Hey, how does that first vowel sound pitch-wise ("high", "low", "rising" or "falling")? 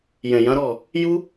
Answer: low